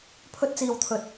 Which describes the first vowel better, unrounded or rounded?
rounded